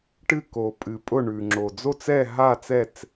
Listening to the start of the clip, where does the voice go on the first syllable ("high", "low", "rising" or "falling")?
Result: falling